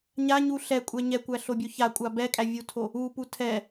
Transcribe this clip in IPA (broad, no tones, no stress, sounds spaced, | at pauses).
ɲ a ɲ u ɬ ɛ kʷʼ ɛ ɲ ɛ kʷ æ ɬ o bʲ o ç a kʷʼ a b ɛ kʼ æ vʲ u tʰ o | u p u tʰ ɛ